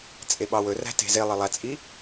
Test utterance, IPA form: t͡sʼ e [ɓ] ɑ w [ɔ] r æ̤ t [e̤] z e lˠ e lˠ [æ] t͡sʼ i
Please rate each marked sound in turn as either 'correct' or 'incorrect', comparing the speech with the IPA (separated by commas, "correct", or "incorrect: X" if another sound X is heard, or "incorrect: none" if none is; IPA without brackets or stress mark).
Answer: correct, incorrect: ɵ, correct, correct